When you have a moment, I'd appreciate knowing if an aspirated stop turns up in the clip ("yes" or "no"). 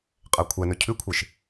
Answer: yes